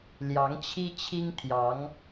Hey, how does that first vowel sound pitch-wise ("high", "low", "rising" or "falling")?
rising